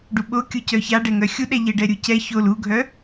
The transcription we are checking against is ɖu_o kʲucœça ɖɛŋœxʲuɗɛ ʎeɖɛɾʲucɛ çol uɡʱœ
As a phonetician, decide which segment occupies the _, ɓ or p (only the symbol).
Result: ɓ